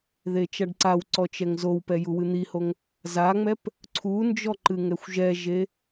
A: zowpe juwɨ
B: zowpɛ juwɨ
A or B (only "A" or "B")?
B